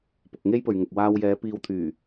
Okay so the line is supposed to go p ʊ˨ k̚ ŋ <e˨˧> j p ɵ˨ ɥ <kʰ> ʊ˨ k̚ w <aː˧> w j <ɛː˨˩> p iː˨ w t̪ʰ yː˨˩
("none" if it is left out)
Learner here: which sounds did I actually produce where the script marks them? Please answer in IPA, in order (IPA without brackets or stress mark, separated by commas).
e˥, ŋ, aː˧, ɛː˨˧